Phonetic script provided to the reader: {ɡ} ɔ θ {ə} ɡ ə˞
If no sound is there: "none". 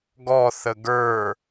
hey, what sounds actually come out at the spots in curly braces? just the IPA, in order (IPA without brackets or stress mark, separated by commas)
ɡ, ə